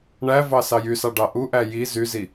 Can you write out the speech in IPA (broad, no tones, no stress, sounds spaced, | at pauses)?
ɳ æ v ɑ s ɑ j y s ɑ ɖ ɑ ʔ u ʔ æ j i z y z i